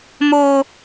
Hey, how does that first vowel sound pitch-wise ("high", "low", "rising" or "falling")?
high